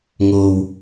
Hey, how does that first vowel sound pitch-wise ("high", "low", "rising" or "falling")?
low